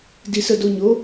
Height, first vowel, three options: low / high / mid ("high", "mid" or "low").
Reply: high